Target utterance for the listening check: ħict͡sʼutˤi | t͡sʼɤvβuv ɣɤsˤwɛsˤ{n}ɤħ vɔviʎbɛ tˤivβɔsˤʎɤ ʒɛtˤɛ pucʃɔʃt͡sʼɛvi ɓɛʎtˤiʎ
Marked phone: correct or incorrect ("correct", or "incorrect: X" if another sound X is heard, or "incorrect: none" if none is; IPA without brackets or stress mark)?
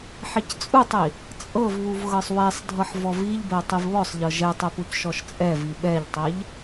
incorrect: dʱ